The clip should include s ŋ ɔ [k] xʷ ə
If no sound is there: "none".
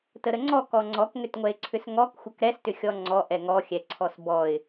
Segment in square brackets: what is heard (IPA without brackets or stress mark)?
k